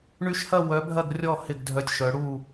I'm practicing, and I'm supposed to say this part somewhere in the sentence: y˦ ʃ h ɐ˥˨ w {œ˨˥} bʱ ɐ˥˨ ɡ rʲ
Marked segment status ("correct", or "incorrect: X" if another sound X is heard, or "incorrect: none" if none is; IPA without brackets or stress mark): correct